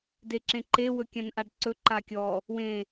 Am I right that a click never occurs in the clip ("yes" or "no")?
no